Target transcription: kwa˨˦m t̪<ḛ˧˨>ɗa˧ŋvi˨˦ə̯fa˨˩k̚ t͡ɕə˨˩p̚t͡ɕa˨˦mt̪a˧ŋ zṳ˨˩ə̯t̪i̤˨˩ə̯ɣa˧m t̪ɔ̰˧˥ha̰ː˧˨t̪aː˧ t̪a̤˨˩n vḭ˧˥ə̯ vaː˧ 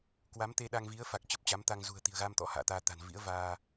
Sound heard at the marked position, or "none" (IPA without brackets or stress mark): e˧